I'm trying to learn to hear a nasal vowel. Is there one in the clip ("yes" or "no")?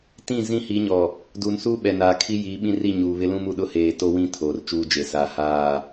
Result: yes